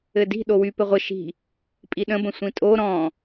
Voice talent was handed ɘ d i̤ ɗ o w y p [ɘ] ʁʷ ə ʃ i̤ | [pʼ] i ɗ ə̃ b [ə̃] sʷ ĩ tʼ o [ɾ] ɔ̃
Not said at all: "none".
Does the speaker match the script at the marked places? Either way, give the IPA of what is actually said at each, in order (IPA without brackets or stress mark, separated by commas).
ɘ, pʼ, ə̃, ɾ